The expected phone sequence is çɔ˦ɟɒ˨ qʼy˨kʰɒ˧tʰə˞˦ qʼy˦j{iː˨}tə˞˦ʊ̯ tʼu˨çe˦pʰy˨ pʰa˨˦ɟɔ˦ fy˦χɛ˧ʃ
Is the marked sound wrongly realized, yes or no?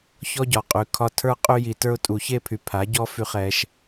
yes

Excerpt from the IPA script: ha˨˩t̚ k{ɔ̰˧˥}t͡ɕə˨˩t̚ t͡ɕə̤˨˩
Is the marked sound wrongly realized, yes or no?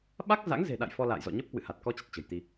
yes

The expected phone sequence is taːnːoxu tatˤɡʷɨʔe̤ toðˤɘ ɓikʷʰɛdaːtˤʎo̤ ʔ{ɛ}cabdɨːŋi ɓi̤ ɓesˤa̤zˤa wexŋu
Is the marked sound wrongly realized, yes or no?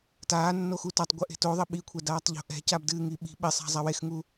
yes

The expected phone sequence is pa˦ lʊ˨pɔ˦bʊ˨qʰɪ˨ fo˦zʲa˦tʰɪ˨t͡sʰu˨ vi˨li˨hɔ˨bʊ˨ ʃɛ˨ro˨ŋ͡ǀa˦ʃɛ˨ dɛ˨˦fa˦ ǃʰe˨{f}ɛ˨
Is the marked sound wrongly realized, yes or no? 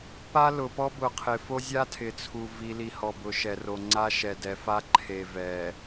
yes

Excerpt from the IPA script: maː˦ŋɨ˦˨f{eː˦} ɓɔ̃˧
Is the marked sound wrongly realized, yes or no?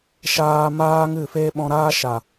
no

